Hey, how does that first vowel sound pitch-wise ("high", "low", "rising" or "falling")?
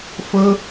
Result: high